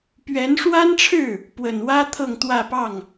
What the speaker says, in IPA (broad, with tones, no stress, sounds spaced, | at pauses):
p ɥ ɛ˧˥ n ʂ w a˥ n ʈ͡ʂʰ ɻ̩˥˩ | p w ə˨˩ n w ä˥ t̪ʰ ɤ˥˧ ŋ t̪ w ä˥˧ p ɑ˥˩ ŋ